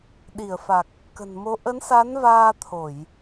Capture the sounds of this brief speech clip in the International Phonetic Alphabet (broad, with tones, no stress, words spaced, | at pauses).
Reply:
ɗi˧˩ə̯fa˨˩k̚ | kə̤˨˩nmo˨˦ ʔə˨˦nsa˨˦nvaː˧ t̪ʰo˧˩˨j